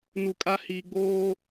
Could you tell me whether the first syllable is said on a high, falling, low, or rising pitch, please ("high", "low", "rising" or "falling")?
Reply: low